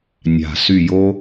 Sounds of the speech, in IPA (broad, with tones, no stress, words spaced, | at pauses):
nʲa̤˨˩ sy˦˨ jo˥